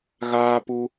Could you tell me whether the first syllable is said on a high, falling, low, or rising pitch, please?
high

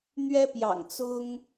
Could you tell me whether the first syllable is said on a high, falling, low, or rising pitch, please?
high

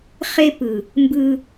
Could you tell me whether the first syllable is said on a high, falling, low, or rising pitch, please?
high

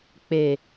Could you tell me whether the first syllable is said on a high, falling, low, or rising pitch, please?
low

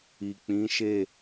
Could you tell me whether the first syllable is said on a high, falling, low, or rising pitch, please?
low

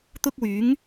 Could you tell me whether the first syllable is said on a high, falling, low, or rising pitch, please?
high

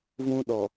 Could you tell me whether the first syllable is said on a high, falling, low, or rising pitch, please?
high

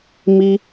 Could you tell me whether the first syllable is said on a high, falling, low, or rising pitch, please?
high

